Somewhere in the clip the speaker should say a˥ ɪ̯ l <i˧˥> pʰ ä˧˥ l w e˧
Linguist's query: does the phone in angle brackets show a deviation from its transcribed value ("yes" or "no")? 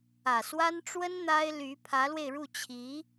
yes